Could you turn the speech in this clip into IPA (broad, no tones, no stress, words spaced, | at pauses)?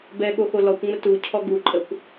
bɛɠoxo lɔkʷŋ͡mə tucʰɔ ɡuǃʼəkʷ